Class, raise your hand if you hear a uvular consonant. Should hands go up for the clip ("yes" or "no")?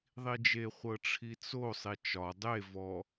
yes